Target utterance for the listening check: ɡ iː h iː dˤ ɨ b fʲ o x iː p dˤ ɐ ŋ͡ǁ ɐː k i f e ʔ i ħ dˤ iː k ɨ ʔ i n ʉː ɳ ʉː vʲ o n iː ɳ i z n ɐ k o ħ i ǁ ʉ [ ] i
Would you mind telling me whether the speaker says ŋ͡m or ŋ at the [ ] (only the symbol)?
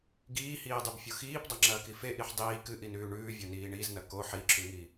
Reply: ŋ